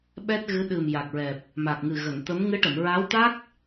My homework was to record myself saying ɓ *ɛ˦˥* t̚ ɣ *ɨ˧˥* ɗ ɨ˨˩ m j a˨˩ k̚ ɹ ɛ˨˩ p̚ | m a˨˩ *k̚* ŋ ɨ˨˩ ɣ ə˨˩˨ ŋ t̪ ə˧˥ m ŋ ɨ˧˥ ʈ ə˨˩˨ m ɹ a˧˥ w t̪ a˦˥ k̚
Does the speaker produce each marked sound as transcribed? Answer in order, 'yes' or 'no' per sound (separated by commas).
yes, yes, yes